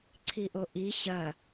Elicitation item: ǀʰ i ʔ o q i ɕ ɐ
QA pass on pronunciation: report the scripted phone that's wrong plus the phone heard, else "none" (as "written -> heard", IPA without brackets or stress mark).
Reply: q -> ʔ